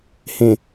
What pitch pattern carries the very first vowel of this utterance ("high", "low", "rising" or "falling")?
low